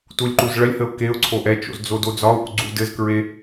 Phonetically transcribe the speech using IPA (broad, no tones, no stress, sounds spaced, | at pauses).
t u lʲ ǃ u z ɭ ɐ lʲ h ə ʊ̯ k e ʊ̯ ǀʰ o ʔ ɛ t͡ʃ o̰ z d͡z o d o d͡z ɒ ʊ̯ ʔ u ɡ͡ǀ u d ɘ z k ɹ e